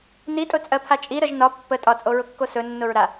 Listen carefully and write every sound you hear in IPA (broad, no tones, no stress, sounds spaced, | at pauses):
n i tʼ ʊ t͡sʼ ɜ pʰ a t͡ʃʼ i ɾ ə ʒ n ɒ pː ə tʼ ɒ t͡sʼ o ɹ ʊ kː o s ɵ nː ʊ ɹ ɾ a